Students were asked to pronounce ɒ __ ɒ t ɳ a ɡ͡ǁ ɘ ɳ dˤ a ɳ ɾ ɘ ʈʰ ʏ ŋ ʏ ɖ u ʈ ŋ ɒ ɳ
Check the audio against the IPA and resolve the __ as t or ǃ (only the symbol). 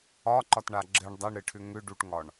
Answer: ǃ